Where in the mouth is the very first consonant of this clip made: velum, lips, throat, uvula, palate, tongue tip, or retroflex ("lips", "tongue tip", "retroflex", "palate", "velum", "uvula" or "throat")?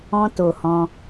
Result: tongue tip